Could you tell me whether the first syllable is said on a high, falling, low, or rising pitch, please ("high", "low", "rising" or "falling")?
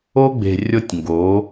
high